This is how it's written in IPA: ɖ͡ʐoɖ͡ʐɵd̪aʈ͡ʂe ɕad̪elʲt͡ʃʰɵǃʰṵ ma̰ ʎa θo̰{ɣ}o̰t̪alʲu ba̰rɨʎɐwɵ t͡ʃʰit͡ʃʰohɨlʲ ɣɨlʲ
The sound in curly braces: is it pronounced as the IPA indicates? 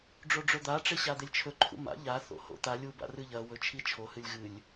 no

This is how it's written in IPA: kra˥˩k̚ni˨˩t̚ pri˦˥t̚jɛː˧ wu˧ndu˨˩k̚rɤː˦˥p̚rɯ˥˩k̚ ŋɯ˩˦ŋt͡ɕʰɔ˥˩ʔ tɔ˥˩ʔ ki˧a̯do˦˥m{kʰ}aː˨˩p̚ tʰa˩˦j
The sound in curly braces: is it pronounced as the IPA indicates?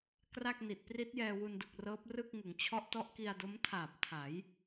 no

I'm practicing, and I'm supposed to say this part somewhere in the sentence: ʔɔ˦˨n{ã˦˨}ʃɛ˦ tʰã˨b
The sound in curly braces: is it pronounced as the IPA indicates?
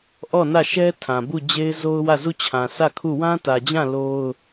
no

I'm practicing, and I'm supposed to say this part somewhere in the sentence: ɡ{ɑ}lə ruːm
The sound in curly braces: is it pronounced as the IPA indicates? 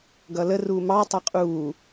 no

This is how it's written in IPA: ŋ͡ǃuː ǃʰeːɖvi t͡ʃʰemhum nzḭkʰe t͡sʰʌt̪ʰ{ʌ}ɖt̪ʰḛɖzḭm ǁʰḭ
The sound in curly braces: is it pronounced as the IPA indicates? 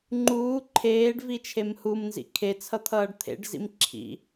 no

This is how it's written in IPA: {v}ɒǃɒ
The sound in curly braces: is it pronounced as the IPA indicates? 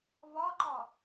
yes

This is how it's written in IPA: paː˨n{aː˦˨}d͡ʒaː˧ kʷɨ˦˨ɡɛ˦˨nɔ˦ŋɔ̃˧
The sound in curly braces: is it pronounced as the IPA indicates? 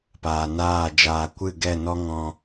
yes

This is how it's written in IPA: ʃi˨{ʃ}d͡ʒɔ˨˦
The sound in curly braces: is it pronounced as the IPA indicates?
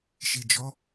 no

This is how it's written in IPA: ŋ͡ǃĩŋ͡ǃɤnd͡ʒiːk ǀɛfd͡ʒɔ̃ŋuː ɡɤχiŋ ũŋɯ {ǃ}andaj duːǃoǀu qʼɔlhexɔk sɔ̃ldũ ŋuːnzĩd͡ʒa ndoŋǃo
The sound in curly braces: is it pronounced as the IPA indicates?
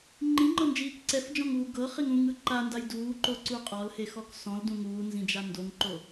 yes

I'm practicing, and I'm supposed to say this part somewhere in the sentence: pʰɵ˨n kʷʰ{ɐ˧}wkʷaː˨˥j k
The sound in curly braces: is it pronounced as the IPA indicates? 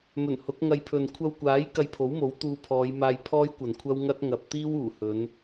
yes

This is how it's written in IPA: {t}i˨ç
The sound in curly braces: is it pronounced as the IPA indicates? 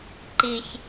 no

